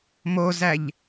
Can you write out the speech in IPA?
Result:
mozæʎ

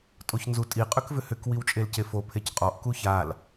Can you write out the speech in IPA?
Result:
tʼoçnzutʼi qʼʏkvʏhʏk wiwt͡ʃʼelcefo pʰecqʼɔʔ kuçal

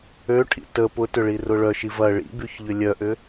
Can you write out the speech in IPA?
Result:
øʈʰḭ tə pʊtʏɭirʊ ɭœʃi vɐ ɭḭbyçʎʏ lʲœʔʏ

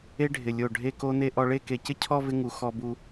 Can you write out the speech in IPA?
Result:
e˥ɖʱɪ˧˩lʲo˧˩ ɖʱe˥˧ko˥ne˥ ʔɔ˧ɭe˥˧ ke˧˩cɪ˥ cʰɔ˥˧vɪ˧ŋu˩˧ xɔ˧bu˧

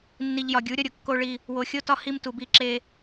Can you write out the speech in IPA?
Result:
nːi˨ʎjɒ˨ɡʲu˨˦ ɾʲɒ˦ɾʲo˨ kːo˦ɭi˦ | wo˨xʲo˦tɒ˦ hi˦m tu˨bi˦˨ǁe˦

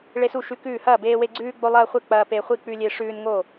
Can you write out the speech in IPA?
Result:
ɭe˦su˥˩ʃʉ˦kʉː˥˩ hɐː˥˩beː˦we˦ ɡ͡ǀʉː˦ɡ͡bo˦lˠɐː˦χʷe˥˩ k͡pɐː˦pe˦ χʷi˥˩k͡pʉ˦lʲe˦ʂʉː˦n ŋo˥˩

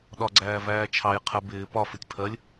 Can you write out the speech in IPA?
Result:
ɗɒɡ͡ǀæː væːt͡ʃʰɑj qʰə bɪː pɒfɪtʲ pʰɜlʲ

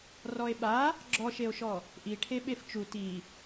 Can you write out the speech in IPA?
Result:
rɔe̯ɓa | ɡ͡ǁɔʃeo̯ʃɔ | ʔiʈʰe ɓeft͡ʃu ti

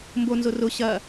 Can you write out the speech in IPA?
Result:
mbonzʊ rʊ ɕɐ

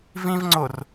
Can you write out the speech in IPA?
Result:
vĩvŋ͡ǀor

